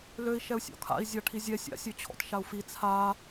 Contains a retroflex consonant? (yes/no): yes